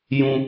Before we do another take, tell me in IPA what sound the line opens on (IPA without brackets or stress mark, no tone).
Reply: j